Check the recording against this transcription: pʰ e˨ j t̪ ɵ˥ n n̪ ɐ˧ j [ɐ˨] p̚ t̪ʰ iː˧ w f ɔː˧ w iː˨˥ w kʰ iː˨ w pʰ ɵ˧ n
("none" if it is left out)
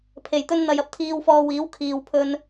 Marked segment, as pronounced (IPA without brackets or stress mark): ɐ˧